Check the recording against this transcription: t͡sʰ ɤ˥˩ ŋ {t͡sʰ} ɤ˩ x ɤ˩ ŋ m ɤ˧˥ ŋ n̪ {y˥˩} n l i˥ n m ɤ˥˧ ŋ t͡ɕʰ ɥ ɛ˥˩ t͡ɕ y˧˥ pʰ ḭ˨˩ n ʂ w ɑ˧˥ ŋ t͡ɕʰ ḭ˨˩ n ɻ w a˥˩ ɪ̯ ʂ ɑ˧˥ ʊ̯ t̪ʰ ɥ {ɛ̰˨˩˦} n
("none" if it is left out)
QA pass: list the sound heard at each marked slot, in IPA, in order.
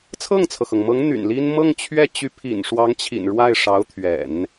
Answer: t͡sʰ, y̰˨˩, ɛ̰˨˩˦

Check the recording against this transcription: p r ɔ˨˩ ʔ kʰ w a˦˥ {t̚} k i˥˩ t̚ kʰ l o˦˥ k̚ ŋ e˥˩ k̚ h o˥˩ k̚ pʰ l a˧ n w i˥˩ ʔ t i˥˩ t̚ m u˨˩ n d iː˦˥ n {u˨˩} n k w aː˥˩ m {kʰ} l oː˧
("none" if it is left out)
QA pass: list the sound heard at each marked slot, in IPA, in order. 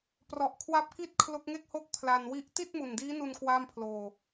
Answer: p̚, u˧, pʰ

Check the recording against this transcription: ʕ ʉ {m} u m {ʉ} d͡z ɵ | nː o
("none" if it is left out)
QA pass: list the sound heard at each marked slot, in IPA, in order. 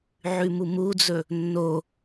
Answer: m, u

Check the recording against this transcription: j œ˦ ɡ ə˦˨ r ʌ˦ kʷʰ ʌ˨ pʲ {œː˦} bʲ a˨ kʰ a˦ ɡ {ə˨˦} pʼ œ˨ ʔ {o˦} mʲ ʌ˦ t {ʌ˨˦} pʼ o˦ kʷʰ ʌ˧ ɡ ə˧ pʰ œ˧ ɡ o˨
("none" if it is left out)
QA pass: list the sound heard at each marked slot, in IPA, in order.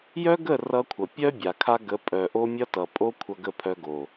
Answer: œ˦, ə˨˦, o˦, ʌ˨

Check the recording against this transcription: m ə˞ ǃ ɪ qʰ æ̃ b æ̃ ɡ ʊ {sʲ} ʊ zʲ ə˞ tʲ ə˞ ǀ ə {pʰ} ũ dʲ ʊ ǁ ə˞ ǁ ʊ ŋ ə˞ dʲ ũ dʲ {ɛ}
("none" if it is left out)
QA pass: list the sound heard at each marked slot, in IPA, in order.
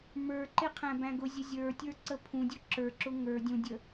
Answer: zʲ, pʰ, ə

